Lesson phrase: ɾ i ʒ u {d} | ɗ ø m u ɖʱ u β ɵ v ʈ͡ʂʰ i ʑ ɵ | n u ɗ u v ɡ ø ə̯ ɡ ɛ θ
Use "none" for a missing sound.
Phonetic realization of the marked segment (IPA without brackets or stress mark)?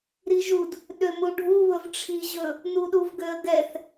d